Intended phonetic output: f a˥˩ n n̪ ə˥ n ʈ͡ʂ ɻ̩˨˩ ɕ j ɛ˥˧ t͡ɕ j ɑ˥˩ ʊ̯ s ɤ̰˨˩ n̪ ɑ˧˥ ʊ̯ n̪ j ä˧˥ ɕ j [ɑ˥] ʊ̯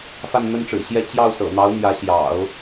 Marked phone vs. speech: incorrect: ɑ̰˨˩˦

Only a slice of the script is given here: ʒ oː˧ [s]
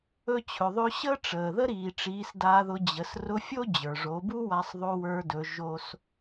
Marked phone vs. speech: correct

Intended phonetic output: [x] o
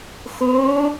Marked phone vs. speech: correct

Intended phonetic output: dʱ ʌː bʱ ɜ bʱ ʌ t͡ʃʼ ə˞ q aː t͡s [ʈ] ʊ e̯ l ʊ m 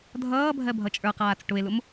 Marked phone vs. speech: correct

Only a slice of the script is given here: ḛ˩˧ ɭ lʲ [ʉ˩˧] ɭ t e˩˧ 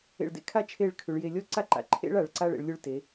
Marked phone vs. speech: incorrect: ʉ˧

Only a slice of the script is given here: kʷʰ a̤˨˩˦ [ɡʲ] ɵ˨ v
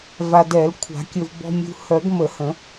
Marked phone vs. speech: incorrect: kʲ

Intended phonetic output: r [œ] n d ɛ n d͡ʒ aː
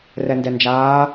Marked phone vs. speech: incorrect: ɛ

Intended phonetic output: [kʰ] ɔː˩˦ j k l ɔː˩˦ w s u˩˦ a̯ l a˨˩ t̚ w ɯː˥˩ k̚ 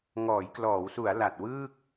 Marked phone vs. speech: incorrect: ŋ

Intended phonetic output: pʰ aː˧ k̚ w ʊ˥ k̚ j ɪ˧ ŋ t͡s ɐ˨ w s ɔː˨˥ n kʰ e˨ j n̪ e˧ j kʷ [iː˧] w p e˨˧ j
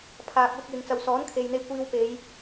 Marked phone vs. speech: correct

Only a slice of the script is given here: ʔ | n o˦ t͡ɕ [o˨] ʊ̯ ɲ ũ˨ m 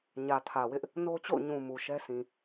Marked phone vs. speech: incorrect: o̰˦˨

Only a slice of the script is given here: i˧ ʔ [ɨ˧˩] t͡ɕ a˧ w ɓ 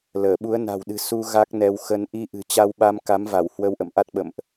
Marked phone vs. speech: incorrect: ɨ̤˨˩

